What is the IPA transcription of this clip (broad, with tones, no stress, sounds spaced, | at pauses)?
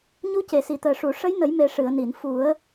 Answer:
ɲ u˧˥ c e˨˩˨ s i˨˩˨ t̪ əː˨˩ ʂ u˨˩˨ ʂ ə˧˥ j n ə˨˩˦ j m e˨˩˦ ʂ ɨ˨˩˨ ə̯ n i˨˩˨ n f u˨˩˦ ə̯